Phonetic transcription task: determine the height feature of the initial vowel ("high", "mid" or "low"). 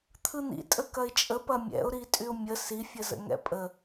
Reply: high